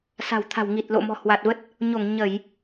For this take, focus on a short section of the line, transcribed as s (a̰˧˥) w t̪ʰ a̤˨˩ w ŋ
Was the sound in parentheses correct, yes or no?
no